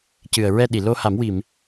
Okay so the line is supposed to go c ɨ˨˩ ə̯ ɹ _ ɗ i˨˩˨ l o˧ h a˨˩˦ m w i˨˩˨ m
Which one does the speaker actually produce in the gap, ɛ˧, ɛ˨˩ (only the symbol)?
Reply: ɛ˧